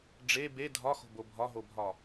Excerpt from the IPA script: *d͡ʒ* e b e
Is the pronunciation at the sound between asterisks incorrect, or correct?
incorrect